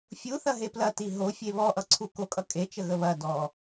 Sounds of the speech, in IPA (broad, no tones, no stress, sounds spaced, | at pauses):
fʲ u θ ɐ ɦ e p l ɐ t i ɦ o fʲ e β ɔ ʔ ʌ ǀʰ u k o kʼ ʌ kʼ e t͡ʃ ə ɣ ə β ɐ d ɔ